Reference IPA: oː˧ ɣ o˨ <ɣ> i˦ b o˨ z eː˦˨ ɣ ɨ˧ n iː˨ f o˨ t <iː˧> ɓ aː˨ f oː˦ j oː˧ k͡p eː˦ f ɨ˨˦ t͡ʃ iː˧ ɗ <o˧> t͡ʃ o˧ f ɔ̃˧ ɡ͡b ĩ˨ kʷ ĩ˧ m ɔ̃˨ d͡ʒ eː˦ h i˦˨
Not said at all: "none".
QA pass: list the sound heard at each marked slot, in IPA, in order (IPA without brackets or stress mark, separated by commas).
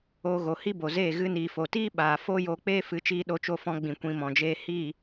h, iː˦, o˧